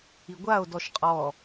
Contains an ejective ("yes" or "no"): yes